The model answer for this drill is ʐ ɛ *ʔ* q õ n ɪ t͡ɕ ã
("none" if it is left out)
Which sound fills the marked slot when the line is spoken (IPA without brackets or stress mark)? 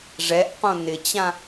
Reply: ʔ